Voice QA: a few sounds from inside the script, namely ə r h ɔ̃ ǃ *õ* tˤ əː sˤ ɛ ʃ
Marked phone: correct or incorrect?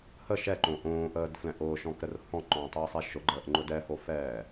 incorrect